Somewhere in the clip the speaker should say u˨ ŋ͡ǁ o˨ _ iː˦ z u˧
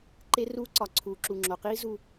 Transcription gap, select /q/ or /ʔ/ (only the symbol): q